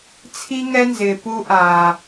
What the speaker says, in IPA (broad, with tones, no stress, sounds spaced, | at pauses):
t͡sʰ i˦ ŋ ɛ˦ n z ɪː˨ p u˦ ʔ aː˨